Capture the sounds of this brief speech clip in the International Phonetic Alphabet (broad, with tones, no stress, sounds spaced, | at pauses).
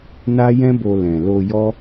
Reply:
n a˦ j ɛ̃˦ b o˧ l ɛ̃˨ l o˧ j ɔ˦